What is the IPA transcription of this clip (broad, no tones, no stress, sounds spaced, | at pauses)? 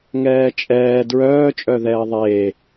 ŋ ɛː t͡ʃʼ ɛː d ɹ œː t͡ʃʼ œ ð ɛː ə̯ ðˤ eː